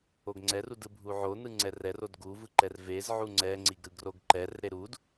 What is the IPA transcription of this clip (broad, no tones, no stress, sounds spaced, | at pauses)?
o ɡ ŋ͡ǀ ɛ r u d ɯ bʱ u ʕ o n ɯ ŋ͡ǀ ɛ r ɛ r o d ɡ u v ɯ ǃ ɛ r v e z ʕ u ŋ͡ǀ ɛ ŋ͡ǀ i ɡ ɾ ɯ ɡ r o ɡ ǃ ɛ r ɾ e ɾ u d